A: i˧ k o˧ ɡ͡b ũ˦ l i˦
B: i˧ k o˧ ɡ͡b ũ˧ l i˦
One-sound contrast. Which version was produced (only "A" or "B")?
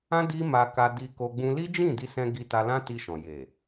B